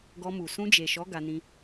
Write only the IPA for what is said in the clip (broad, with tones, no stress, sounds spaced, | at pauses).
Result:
ɡ ɔ˧ m u˨ s ũ˧ d͡ʒ e˨ ʃ ɔ˨˦ ɡ a˧ n ĩ˧